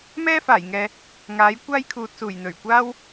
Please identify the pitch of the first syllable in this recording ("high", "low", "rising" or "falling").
high